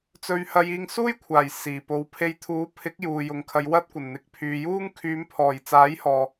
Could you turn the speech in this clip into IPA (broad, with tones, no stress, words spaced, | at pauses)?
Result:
t͡sɵ˥ɥhɐ˥jiː˥ŋ suː˥jkʷʰaː˨˩j siː˨˩po˨˧w pʰe˨˧jt̪ʰuː˨˥pʰɪ˨˥k̚ juː˨jʊ˨ŋkʰɐ˨˧j wɐ˥t̚kʷɐ˨˩nn̪ɪ˨˥k̚ pʰyː˨juː˥ŋ kʰyː˨˧mpʰɔː˨˩j t͡saː˨˥jhɔː˨